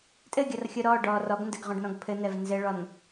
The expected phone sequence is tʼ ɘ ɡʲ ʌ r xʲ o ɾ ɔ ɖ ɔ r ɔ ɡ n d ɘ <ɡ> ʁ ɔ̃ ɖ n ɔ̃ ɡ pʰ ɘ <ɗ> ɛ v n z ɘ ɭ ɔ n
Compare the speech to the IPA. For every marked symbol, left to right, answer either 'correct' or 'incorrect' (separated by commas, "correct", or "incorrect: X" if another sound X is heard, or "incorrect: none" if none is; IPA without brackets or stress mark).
correct, incorrect: n̪